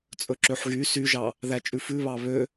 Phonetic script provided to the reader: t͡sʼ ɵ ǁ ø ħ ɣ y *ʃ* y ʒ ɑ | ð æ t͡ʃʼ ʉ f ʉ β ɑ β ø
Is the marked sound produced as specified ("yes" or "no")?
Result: no